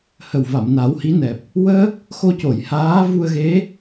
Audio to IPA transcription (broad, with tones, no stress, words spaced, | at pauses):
hə˨˩wva˨˩˨m na˨˩˦whi˧˥nɛ˨˩p̚ | wəː˦˥k̚ | xo˧co˨˩˨j haː˧˥ vu˧ə̯ɣe˧˥